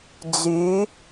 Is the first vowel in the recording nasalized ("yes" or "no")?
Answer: no